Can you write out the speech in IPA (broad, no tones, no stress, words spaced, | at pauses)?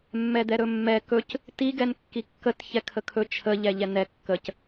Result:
mːɛd̪ɛɾɵmːɛ kɵc | tiɡɛn kːikːət çɛkʰəkʰɵ t͡ʃʰəʎɛ ʎɛnɛ kːəc